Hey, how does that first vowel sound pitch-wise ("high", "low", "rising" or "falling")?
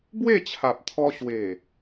falling